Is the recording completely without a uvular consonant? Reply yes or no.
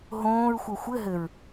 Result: yes